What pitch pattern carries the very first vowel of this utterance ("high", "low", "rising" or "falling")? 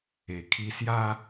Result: low